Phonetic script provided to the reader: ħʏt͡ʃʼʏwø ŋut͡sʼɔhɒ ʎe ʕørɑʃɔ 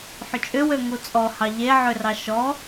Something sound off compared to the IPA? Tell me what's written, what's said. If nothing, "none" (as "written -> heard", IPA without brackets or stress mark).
ɒ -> ɑ